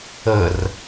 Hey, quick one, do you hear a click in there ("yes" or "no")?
no